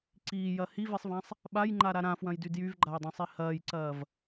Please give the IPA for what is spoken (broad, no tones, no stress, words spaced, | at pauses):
ǀiːjɐ hivisˤvãsˤ | ɓajŋ͡ǃaɾa ɾãfwɐ̃jdy djyvɡ͡ǃajdˤɐ̃sˤi hɐːjǀɐːv